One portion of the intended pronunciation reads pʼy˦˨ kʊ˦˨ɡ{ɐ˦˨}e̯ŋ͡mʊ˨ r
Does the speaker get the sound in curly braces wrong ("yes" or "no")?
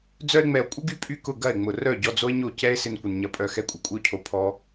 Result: no